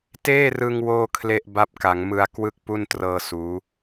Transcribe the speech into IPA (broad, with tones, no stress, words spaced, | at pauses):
teː˥˩rɯ˧ŋ woː˥˩kʰle˥˩ʔ ba˦˥p̚ka˩˦ŋmɯ˧a̯ kwɯ˥˩k̚ pu˥˩n trɤː˧ suː˦˥